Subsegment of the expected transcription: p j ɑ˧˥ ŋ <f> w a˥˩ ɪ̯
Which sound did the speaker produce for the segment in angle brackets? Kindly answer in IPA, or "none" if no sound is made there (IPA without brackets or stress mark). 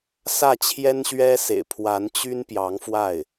f